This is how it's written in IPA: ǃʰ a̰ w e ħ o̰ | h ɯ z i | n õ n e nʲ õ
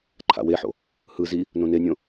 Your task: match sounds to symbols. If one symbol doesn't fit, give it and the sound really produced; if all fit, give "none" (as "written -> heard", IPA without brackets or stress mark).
none